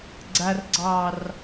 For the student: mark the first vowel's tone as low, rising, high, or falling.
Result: low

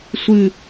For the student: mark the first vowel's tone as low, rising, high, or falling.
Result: falling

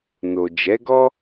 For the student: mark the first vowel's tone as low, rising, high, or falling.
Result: low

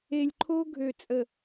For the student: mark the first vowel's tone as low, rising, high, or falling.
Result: low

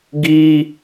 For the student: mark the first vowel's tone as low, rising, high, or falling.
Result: high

